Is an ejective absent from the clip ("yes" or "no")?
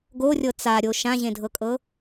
no